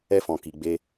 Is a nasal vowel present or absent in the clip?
present